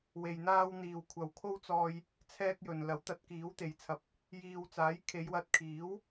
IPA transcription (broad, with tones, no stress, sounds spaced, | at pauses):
w e˧ j n̪ aː˥ w n̪ iː˨ w kʷʰ ɐ˨ w kʰ o˥ w t͡s ɔː˧ j | t͡sʰ ɛː˥ k̚ j ɵ˨ n l ɐ˨˥ w t̪ ɐ˨˥ t̚ k iː˨˥ w t̪ e˨˧ j t͡sʰ ɐ˨˥ p̚ | j iː˨ w t͡s aː˨˥ j kʰ e˨˧ j w ɐ˧ t̚ kʰ iː˨˥ w